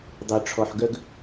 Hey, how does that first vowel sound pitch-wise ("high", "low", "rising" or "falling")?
low